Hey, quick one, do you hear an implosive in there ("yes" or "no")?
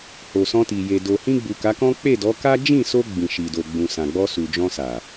no